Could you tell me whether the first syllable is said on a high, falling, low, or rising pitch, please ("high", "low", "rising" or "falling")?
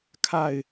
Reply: falling